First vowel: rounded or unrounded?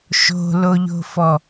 rounded